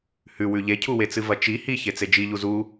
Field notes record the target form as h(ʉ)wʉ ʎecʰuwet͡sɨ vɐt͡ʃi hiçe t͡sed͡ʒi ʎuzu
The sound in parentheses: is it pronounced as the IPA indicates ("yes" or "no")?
yes